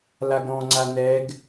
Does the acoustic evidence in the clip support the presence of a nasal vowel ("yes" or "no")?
yes